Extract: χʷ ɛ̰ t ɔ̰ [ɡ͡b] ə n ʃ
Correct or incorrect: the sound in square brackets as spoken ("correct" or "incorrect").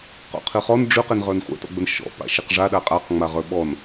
correct